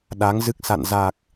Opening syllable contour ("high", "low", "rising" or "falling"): rising